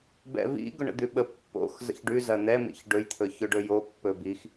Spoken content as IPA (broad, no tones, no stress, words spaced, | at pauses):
bɛ̰vḭ ɡʊɳə̰d̪ʉɓə pːo̰x zə̰çɖʉ zɐn̪ɛmḭç ɖɵjt̪ʰɵçɵ ɖɵjo pːɵbix